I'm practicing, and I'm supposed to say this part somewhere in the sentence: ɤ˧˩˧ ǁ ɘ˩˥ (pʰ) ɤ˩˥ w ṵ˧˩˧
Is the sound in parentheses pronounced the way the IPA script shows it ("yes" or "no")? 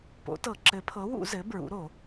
yes